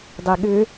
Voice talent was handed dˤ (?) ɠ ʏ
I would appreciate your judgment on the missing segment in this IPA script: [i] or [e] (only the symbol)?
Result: e